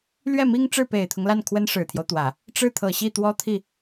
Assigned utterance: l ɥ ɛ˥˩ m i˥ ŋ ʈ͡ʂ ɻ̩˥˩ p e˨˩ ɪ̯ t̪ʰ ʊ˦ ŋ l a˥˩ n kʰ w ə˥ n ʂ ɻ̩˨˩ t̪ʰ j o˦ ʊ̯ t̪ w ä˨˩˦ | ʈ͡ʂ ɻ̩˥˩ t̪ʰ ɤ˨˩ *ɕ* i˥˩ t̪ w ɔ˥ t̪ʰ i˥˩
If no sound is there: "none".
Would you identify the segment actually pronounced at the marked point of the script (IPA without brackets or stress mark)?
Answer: ɕ